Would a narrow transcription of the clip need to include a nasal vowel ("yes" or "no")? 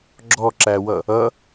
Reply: no